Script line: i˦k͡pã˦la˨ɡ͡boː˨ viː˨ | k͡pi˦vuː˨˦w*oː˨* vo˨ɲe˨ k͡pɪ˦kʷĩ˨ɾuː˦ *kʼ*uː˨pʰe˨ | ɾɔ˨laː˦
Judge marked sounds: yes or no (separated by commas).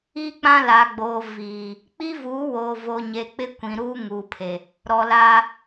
yes, no